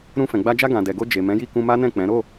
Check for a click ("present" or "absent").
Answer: absent